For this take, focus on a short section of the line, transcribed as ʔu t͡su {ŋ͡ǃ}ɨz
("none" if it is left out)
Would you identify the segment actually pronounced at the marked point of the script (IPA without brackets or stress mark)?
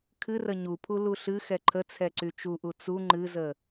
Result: ŋ͡ǃ